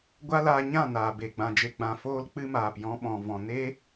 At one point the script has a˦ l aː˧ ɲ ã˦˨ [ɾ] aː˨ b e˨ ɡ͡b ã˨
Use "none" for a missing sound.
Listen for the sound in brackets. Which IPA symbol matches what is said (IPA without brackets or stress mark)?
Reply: n